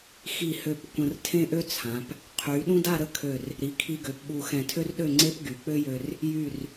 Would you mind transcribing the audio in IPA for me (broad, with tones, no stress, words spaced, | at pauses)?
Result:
xi˧˩hø˧˩p kʷə̃˧rtʰẽ˥ʔø˥t͡sʰã˩˧p | qʰy˩˧ ɗũ˥da˥˧ɾə˥˧kʰø˧˩r | ɾi˩˧kʰi˧ɡø˩˧pɓu˧˩ xɛ̃˧˩tʰø˥rɗø˥˧ ŋ͡ǀe˥pɡy˩˧k͡pø˥jø˧r | jy˧˩r